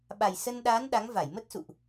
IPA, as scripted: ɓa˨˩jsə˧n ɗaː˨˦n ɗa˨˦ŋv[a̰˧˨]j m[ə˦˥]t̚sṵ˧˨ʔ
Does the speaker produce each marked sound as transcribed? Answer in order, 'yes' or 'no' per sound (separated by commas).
no, yes